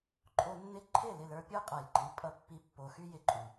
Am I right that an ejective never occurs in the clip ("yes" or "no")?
no